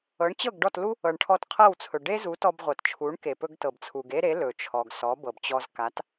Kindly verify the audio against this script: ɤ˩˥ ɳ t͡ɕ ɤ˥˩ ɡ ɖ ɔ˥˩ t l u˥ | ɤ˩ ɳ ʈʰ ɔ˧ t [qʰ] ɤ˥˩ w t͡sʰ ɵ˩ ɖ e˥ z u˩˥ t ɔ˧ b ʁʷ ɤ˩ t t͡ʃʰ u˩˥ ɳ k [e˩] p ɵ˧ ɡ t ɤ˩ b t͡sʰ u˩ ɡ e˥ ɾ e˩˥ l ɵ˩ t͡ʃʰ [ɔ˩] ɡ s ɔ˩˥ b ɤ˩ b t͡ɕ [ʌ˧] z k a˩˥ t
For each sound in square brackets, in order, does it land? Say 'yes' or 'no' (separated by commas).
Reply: yes, yes, yes, no